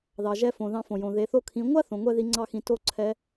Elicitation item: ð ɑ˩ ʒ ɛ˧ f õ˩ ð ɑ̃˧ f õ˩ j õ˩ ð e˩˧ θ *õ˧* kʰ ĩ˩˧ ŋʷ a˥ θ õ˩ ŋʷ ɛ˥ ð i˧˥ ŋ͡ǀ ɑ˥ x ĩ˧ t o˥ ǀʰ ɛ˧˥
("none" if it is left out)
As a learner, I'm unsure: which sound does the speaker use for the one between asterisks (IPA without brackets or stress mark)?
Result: o˧